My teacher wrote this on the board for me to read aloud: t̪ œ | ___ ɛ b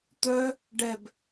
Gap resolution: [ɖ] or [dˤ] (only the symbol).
ɖ